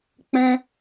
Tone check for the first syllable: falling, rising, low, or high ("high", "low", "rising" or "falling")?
high